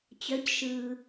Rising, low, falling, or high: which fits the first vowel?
rising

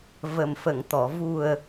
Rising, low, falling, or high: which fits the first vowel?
low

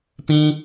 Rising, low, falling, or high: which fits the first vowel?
high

